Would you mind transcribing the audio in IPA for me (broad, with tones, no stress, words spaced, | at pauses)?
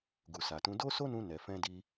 ɡu˨sa˨tũ˨˦ do˦so˦nũ˧ nɛ˨fɛ̃˧di˧